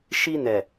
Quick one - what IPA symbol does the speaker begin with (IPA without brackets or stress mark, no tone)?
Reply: ʃ